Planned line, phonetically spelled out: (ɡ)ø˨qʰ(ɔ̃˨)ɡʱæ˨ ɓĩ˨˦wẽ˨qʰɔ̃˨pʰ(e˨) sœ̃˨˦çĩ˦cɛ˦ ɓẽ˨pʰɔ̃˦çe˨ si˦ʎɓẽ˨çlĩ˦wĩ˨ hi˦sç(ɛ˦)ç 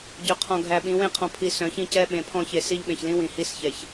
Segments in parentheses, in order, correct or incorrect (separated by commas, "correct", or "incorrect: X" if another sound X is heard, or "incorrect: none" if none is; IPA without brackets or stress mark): incorrect: ɟ, correct, incorrect: i˨, incorrect: ɛ˨